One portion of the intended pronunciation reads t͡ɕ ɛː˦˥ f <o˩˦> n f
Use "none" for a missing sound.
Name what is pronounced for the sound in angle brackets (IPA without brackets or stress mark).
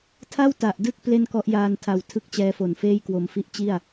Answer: o˨˩